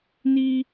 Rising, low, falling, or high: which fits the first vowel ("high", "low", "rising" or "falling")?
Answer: high